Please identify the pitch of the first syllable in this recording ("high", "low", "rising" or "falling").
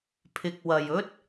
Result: low